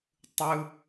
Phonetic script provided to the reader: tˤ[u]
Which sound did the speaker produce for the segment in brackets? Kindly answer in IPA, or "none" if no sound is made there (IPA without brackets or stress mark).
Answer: ɯ